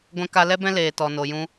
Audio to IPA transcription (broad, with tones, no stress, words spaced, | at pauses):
ɡʷɛ̃˦ka˦ lɛ˦bɛ̃˦leː˨ tɔ˨no˨jũ˧